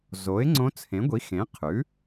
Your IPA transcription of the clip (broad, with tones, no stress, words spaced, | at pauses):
zo˩˥ɪ̯ŋ͡ǀõ˧˥ t͡sʰẽ˩˥ɡʷi˩˥xẽ˩˥ qʰʉ˩˥